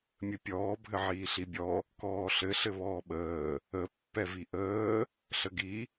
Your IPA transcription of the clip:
mʲ ɘ pʲ ɔː bʱ ɘ ʕ iː ɬ i bʲ ɔ | k ɔː ɬ ɘ ɬ ɘ β ɔː ɓ əː | ə pː ɛ v i ʔ əː | ɬ ə ɡ i

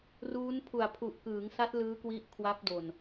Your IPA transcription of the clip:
r uː˦˥ n pʰ u˨˩ a̯ pʰ u˨˩ ʔ k ɯː˩˦ ŋ s a˦˥ t̚ l ɯː˦˥ k w i˦˥ ʔ kʰ w a˦˥ p̚ d o˨˩ n

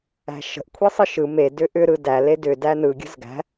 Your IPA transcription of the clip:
æ̤ ʃ ə̤ ʔ kʷʰ e sˤ ɯ ʃ ɯ m e d ʏ ʔ ʏ ɾ ɯ d æ l e d ʏ d æ n ɯ ɡʲ ə̤ z ɡ æ̤

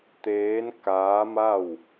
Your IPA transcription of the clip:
t̪ eː˧˥ n k aː˧˥ m a˥˨ w

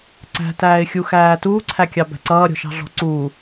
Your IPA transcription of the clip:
ǀ æ̤ t æː ɪ̯ xʲ u x æː t uː ǀʰ æ kʲ ɑ b æ̤ ǀ ʌː ɾʲ ɔ̤ ʃ ɑ̤ ɮ ɔ̤ ǀ uː

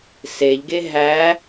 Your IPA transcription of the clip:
s e ʎ ɡ e ɦ æ

